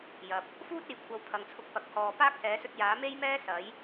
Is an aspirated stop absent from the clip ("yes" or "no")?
no